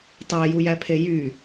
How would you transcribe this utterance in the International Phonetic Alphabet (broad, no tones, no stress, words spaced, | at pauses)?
tˤæjujæpʰe jy